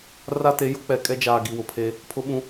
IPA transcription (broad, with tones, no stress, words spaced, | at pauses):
ra˦te˨˦jʊ˦ k͡pɛ˨kʼɛ˦d͡ʒaː˨ ɡi˨wʊ˨pʰe˦ | pʰʊ˦ɓũ˦